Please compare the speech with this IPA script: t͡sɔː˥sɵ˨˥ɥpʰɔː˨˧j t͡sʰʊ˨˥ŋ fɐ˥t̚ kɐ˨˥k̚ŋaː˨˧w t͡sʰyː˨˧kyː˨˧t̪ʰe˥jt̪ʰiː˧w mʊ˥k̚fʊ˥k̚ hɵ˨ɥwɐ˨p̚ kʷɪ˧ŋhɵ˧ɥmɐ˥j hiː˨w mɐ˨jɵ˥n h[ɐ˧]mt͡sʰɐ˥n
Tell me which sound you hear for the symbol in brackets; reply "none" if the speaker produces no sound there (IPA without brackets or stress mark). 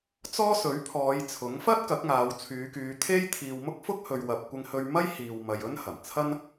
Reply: ɐ˨˩